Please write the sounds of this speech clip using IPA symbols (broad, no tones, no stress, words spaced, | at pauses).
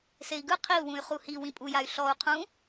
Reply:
sei̯ɡɯ qʰiu̯wũy̯ χuhi wĩpʼujay̯ ɬɔu̯ qʰũ